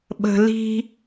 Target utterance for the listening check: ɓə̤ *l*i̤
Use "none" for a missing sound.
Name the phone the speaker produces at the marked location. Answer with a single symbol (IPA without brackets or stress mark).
l